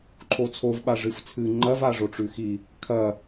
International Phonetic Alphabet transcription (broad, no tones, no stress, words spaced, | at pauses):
ǃʰot͡sʰov ɓaʐɨft͡sʰɨ ŋ͡ǃɐv aʐoʈ͡ʂʉxi | kʰɐ